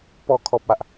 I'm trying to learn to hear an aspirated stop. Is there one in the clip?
yes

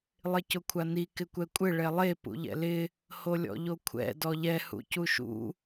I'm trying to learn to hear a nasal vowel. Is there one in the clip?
no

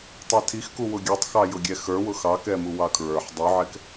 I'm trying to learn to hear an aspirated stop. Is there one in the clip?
yes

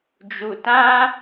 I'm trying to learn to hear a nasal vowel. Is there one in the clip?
yes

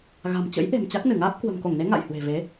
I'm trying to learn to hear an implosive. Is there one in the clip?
no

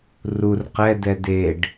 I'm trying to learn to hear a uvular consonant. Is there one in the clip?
yes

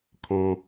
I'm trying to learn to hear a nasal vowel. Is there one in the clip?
yes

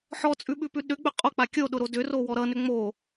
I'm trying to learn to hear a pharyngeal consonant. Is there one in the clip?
yes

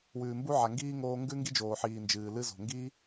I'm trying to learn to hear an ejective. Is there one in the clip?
no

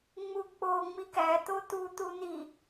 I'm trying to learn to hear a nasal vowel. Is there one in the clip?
no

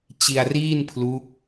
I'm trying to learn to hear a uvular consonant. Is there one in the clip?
no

